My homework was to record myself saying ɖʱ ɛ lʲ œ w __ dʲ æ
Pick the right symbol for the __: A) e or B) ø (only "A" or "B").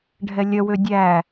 B